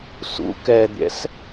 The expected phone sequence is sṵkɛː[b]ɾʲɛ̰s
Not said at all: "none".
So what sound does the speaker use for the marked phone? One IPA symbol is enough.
d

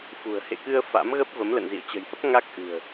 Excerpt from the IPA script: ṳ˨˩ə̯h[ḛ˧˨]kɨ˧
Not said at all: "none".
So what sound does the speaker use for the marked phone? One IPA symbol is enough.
ḛ˧˨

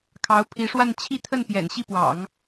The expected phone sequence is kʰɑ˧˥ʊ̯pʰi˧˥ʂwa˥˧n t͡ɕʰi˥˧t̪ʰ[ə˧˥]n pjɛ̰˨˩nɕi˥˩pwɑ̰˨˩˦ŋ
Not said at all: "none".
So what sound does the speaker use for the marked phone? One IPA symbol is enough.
ə˥˩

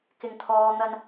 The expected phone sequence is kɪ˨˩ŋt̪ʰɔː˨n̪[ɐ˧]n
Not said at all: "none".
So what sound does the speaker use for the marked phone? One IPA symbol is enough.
ɐ˧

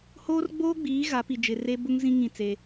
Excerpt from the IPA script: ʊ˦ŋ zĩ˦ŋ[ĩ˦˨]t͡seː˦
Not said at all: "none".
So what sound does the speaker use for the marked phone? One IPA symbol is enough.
ĩ˦˨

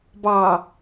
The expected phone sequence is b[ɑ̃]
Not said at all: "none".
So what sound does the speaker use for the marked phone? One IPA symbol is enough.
ɑ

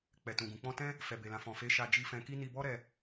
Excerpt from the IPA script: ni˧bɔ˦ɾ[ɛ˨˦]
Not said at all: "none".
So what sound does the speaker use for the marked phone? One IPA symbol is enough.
ɛ˧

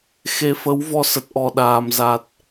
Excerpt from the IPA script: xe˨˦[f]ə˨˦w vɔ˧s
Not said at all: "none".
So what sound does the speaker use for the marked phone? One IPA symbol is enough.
f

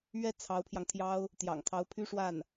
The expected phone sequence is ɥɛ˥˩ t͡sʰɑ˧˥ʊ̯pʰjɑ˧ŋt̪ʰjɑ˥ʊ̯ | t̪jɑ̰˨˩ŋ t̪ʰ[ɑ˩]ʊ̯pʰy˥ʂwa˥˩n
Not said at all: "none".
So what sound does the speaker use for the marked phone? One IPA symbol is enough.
ɑ˧˥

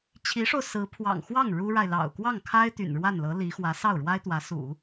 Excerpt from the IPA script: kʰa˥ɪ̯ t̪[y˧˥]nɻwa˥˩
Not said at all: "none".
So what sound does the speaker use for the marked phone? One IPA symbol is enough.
y̰˨˩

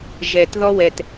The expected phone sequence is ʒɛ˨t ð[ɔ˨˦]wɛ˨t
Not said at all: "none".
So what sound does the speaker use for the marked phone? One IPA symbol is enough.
ɔ˦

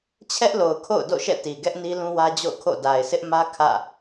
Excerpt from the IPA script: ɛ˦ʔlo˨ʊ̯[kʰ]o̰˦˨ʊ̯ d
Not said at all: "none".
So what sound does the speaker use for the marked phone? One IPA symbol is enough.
kʰ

